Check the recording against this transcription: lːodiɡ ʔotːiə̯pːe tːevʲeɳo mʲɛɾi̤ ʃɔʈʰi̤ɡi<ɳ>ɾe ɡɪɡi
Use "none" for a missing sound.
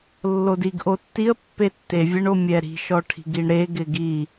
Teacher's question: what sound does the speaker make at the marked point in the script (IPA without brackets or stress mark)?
ɳ